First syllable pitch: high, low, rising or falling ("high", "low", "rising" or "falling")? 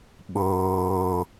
low